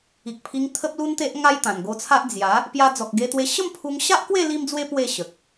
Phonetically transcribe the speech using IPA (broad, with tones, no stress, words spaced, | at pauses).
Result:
i˨k̚pʰi˧ŋ t̪ʰə˦p̚lu˦nt̪e˦ʔ ŋa˦jt̪ã˨˩nɡo˧t͡sʰa˦ʔ d͡zja˨˦ | pja˧d͡zɔ˨k̚ɡe˧t̪we˧ ɕə˥˧mpʰu˧ŋɕa˦ʔkwe˥˧ li˦md͡zwe˦ pwe˥˧ɕə˨k̚